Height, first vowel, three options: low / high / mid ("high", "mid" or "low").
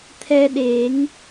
mid